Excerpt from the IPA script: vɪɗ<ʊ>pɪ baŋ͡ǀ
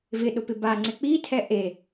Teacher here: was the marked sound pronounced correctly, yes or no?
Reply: yes